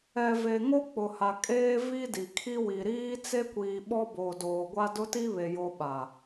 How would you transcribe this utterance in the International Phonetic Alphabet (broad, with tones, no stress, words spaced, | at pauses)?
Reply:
ɛ˨ve˨ ŋo˦k͡pʊ˨ha˨ kʼeː˦vi˦di˨ kʰi˦wi˨ ɾiː˦ t͡se˦kʷiː˨ɓɔ˦ boː˨doː˨ɡʷa˦ dʊ˦ti˦βe˨ jo˦ɓa˨